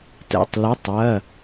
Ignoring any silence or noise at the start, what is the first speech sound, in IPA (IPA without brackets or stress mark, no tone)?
t